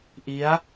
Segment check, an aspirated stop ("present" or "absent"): absent